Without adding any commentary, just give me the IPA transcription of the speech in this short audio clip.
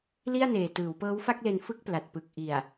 l i˥˩ a̯ n eː˨˩ t ɯː˩˦ w p ɤː˦˥ w f a˥˩ k̚ l e˧ n f ɯ˥˩ k̚ p l a˨˩ t̚ p ɯ˨˩ k̚ ʔ i˨˩ a̯

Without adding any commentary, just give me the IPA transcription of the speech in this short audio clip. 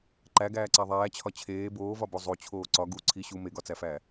ǃ æ ɡ æː ǀ æ ðˤ æː t͡ɕʰ ɒ t͡ɕʰ eː b oː v ɒ b o zˤ o t͡ɕʰ oː ǀ ɒ ɡ u ǀʰ i ɕ u m e ɡ ɒ t͡s æ f æː

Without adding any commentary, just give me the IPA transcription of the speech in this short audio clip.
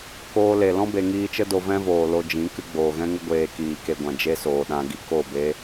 k oː˧ l e˨ l ɔ̃˦ b e˨ ŋ iː˧ t͡ʃ ə˦ d o˧ v ɛ̃˦ v oː˨ l o˧ d͡ʒ ĩ˨˦ k ɨ˧ ɡ͡b oː˨ ɣ ɛ̃˦ ŋ ə˦ ɡʷ eː˧ k iː˨ k e˧ ɡʷ ã˨ d͡ʒ e˦ s oː˨ ɗ ã˧ ɡ i˧ k o˦˨ b e˦

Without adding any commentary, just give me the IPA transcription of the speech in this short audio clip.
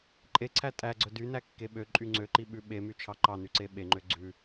ǃʼ e ǀʰ æ tʼ æ ɡ͡ǀ œ d y n æ kː e ɓ ø ǃʼ y ŋ͡ǀ ø ǃ i ɓ ʉ ɓ e m y t͡ʃʰ ɑ ǃ ɑ n y ǀ e ɓ e ŋ͡ǃ ø ɡ͡ǀ ʉ

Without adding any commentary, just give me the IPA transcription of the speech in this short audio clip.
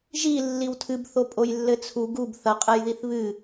ʒ i lː i w tʰ ɨ b θ o pʼ o j lː ɘ t͡sʰ u ɡ u b θ ɐ qʼ ɛ j ð i θ β ɨ

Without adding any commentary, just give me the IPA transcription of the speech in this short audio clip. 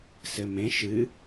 s ɘ m ẽ ʃ ɨ

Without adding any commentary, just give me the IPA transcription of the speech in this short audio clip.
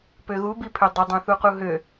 p ø ɣ u b i pʰ ø dˤ o dˤ õ θ u q u ɦ ø

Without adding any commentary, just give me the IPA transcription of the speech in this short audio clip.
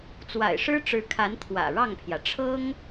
t͡s w a̰˨˩ ɪ̯ ʂ ɻ̩˥ ʈ͡ʂ ɻ̩˧˥ kʰ a˧˥ n t̪ʰ w ä̰˨˩ ɻ ɑ˥˩ ŋ pʰ j ä˩ ʈ͡ʂʰ ɤ˥ ŋ

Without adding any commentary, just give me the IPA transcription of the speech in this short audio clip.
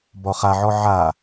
b ɔ χ a ʕ ɔ ʕ a

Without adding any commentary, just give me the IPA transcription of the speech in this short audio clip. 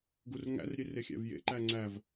ɡ u r ŋ æ̰ r ɾʲ e r e xʲ æ̰ v j ḛ ǃ æ ŋ͡ǀ æ v

